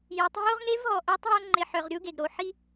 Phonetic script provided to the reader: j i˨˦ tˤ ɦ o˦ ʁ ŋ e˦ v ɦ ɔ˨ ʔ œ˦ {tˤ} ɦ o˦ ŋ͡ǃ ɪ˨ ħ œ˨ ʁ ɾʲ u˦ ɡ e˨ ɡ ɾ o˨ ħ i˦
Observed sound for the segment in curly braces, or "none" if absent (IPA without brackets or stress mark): tˤ